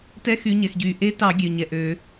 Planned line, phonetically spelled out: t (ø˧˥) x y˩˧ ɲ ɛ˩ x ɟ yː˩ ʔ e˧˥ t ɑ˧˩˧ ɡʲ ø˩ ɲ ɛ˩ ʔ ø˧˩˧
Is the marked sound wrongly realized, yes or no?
yes